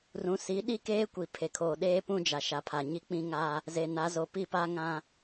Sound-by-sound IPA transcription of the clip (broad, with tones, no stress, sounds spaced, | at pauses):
r ũ˨ s i˨˦ ɗ i˦ k eː˦ kʷ i˨ pʰ e˨ kʰ oː˨ ɗ eː˦ p ũ˦ d͡ʒ a˨ ʃ a˨ pʰ a˨ ɲ i˦ k͡p ĩ˦ ŋ aː˦ | z eː˨ n a˨˦ z o˨ p i˦˨ p a˦ ŋ ã˦